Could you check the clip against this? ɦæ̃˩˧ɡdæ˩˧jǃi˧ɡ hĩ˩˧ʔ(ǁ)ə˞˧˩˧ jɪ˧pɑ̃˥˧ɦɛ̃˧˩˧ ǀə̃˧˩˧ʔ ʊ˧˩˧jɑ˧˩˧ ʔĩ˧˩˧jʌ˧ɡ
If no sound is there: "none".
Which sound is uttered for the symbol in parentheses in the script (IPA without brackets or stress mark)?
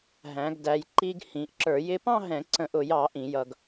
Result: ǁ